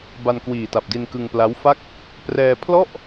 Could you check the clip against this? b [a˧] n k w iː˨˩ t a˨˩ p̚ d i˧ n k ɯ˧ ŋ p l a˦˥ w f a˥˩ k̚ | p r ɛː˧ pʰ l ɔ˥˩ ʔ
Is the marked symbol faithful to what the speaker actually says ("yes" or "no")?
yes